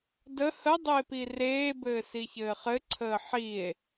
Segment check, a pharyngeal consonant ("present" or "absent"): present